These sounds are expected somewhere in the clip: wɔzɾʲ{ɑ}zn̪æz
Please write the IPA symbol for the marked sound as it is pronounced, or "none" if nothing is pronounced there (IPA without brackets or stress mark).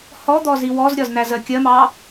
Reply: ɒ